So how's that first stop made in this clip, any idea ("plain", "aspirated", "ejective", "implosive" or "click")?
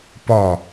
plain